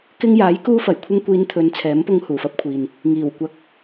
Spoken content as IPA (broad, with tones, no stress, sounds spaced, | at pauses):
k ɪ˧ ŋ j aː˨˥ j k uː˧ f ɐ˨˩ j kʷʰ ɪ˧ ŋ kʷ iː˨˧ n t̪ʰ ɵ˨˧ n t͡sʰ ɛː˨˥ m p ʊ˧ ŋ h uː˨˩ f ɐ˧ p̚ kʷʰ iː˨ n | ŋ iː˨˩ w kʷ ɐ˨˥ k̚